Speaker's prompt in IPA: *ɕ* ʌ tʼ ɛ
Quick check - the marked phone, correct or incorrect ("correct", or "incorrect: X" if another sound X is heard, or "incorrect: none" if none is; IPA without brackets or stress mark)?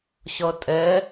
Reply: correct